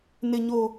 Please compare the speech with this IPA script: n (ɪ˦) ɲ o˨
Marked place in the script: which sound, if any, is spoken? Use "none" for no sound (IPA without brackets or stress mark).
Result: ɪ˨